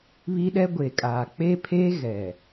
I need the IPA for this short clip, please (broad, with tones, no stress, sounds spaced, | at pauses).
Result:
β i˦ ɗ ɛ˦ ɡʷ e˨ kʼ aː˨ k͡p e˦ pʰ e˦ ɣ ɛ˨